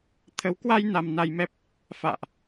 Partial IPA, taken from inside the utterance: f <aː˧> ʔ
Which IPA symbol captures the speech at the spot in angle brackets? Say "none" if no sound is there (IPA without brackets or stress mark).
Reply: a̰ː˧˨